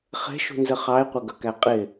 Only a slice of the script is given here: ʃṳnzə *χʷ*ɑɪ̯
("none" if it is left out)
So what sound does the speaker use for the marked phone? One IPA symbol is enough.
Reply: χ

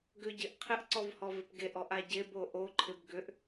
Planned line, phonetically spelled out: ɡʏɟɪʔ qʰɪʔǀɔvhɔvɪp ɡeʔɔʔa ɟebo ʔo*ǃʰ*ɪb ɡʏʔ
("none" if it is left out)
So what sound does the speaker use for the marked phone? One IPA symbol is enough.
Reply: ǃʰ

